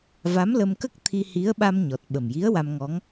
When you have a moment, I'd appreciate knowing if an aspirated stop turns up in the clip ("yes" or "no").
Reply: yes